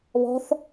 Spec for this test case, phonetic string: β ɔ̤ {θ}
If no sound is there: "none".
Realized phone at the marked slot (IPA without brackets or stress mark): θ